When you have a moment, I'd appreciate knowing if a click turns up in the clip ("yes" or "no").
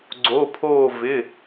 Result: yes